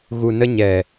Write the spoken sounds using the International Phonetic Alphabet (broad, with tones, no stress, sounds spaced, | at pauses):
ɣ u˨ n ə˧ ɲ ɛ˨